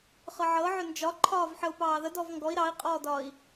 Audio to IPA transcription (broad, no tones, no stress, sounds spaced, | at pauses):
χ ɤ ʕ ɤ ʕ ʏ n d͡ʒ ɒ ǃʰ ɒː v ħ ə u̯ p ɑː ð ə d ɔ v ŋ ɡ ɔ i̯ ɾ ɑ i̯ qʼ ɔː d ɒː i̯